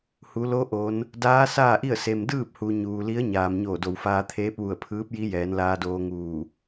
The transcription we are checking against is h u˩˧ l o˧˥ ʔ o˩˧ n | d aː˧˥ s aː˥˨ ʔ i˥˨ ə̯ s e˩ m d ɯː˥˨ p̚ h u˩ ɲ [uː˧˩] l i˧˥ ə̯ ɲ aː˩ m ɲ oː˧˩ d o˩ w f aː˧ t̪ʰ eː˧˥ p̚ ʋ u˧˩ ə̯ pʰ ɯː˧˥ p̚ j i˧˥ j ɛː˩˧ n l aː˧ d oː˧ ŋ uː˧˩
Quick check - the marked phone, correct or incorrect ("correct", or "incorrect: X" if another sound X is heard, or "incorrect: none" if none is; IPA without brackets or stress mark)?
incorrect: uː˩